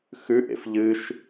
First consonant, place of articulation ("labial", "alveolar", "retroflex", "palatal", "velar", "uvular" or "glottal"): velar